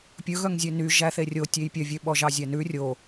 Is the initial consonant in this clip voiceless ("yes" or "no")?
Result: yes